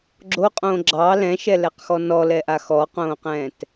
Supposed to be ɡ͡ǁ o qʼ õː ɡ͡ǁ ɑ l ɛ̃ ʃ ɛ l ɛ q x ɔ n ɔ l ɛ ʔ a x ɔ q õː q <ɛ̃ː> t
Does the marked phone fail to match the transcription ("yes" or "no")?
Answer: no